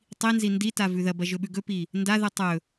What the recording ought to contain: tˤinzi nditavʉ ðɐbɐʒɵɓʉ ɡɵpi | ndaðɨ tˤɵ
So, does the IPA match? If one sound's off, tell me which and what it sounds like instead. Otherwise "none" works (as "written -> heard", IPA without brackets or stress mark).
none